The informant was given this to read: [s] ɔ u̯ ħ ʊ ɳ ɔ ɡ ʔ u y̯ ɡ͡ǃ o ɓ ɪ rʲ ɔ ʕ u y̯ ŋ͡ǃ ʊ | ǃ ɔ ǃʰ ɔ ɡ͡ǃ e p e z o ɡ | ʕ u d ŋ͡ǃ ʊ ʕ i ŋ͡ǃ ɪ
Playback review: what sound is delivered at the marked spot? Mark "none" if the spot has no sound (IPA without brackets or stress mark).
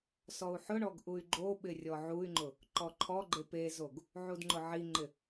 s